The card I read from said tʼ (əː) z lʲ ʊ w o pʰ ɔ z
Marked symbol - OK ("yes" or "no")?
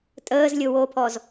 yes